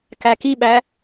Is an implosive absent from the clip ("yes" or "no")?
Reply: no